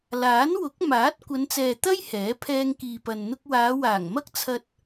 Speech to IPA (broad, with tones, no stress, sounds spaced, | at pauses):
l aː˨˥ n w ʊ˨˥ k̚ m aː˨˥ t̚ kʷ ɐ˨˧ n t͡s ɛː˨ t̪ ɐ˥ j h ɛː˨˥ pʰ ɛː˧ ŋ k iː˨ p ɐ˨ n n̪ ʊ˧ k̚ w aː˨˧ w aː˨˩ ŋ m ɐ˥ k̚ t͡sʰ ɐ˧ t̚